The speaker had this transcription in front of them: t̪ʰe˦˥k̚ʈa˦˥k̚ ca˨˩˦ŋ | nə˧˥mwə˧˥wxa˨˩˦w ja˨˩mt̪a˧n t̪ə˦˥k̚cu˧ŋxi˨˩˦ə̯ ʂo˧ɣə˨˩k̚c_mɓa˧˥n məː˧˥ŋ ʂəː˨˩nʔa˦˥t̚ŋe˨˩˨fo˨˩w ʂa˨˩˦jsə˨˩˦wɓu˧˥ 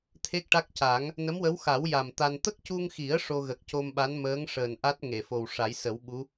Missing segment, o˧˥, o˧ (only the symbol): o˧